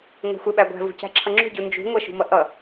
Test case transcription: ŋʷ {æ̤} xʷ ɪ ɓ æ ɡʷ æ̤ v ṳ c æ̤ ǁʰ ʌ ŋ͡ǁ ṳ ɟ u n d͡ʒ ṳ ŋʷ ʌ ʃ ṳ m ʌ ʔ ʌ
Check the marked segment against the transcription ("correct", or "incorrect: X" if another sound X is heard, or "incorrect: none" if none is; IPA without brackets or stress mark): correct